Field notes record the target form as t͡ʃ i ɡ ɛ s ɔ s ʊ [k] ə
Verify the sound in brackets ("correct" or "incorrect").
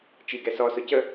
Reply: incorrect